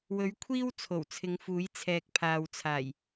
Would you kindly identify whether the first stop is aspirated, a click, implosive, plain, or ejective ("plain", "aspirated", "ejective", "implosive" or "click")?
aspirated